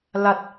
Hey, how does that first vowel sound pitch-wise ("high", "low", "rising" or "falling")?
low